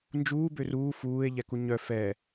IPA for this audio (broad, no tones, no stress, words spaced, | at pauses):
nd͡ʒuː børuː fuːe̯ ʎɛkuɲœ fɛ